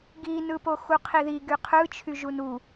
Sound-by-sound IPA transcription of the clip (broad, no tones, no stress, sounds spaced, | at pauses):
ɡ i n ɯ p o x u qʰ i ð i ɡ y qʰ ɯ t͡ʃʰ y ʒ u n u